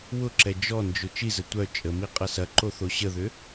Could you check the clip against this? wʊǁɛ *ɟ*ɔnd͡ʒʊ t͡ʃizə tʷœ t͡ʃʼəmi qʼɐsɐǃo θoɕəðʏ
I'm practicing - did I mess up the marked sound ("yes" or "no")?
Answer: yes